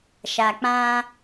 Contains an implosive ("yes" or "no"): no